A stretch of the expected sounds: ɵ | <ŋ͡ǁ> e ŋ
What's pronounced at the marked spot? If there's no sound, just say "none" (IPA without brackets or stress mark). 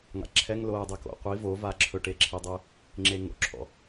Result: ŋ͡ǁ